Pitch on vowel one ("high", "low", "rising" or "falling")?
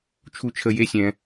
high